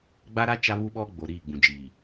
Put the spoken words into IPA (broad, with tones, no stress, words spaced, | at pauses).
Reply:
ɡ͡ba˦ɾa˦ t͡ʃa˦βu˦ɓɔ˦ ɡ͡bo˨ ɾiː˦˨ɡ͡bũ˨d͡ʒiː˨